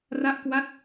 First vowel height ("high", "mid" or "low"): low